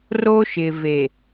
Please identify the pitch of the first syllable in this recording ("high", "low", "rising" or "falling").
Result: high